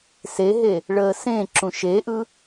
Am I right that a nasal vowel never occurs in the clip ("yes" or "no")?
no